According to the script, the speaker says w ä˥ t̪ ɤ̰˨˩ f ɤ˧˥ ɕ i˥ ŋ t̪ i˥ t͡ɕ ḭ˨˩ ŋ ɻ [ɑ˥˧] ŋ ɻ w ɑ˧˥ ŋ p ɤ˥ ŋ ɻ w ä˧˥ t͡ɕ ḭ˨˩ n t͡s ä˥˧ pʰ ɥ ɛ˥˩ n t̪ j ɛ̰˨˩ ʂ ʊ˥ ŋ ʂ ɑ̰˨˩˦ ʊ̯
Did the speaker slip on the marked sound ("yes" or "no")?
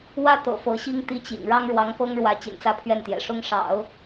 yes